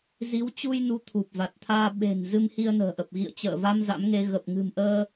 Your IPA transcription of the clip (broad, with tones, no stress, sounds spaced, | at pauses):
z i˨˦ w t͡ɕ u˧ j n u˨˦ t̪ʰ u˨˩ p̚ v a˨˩ t̚ t̪ʰ aː˧ ɓ e̤˨˩ n z ɨ˧ m h i˧ ə̯ n ə̤ː˨˩ ʔ ə˨˩ p̚ ɣ ḭ˧˨ ə̯ t͡ɕ ə̰ː˧˨ v a˧ m z a̰˧˥ m ŋ e˧ ɣ ə˨˩ p̚ ŋ ɨ̤˨˩ m ʔ əː˧